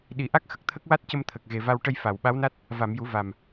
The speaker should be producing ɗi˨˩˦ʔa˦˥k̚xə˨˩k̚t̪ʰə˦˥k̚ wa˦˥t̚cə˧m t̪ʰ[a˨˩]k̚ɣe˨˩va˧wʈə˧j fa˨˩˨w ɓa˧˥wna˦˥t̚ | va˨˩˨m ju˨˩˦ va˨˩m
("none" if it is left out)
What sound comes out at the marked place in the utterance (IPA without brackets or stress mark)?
ə˨˩